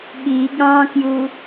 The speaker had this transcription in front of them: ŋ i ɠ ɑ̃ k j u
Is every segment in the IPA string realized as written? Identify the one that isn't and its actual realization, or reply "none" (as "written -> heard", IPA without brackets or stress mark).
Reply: ŋ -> ɠ